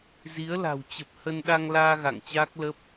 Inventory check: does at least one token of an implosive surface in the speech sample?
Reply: yes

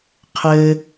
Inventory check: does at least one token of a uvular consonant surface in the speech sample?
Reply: yes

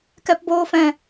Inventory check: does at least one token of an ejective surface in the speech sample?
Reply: no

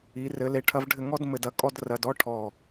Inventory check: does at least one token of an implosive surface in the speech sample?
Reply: no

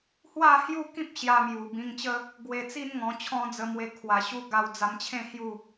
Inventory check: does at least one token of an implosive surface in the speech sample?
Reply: no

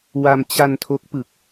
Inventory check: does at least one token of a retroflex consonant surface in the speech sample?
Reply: no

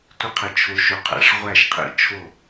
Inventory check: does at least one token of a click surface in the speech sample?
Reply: no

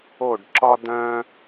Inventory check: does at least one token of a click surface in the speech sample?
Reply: yes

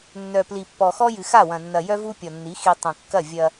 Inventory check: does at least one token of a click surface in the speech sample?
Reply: no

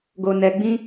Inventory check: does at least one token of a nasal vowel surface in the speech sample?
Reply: yes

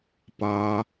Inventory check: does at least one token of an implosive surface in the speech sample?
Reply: no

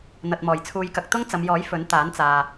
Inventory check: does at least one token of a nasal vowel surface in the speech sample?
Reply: no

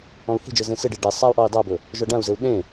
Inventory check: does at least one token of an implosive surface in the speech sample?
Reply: yes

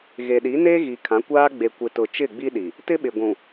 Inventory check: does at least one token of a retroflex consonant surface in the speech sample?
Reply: no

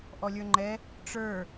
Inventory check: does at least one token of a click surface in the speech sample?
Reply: yes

